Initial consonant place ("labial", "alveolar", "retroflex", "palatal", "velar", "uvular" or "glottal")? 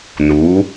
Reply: alveolar